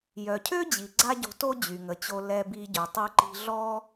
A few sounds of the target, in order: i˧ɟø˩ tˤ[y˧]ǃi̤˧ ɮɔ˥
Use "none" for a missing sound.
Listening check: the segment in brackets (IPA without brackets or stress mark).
y˧